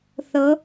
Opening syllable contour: rising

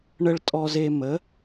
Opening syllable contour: high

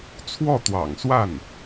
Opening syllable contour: falling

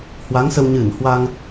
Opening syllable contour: rising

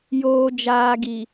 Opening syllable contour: low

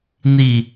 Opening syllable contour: falling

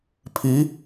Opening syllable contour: rising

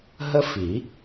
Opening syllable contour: high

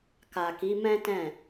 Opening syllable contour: low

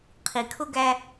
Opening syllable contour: low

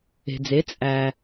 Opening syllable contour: low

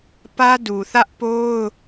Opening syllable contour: high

